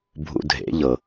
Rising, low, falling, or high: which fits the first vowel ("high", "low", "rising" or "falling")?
low